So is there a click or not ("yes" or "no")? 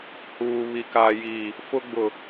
no